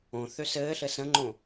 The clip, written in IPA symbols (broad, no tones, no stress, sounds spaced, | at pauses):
õ θ ø s ɘː ɬ ɘ s ə̃ ŋ͡ǃ õ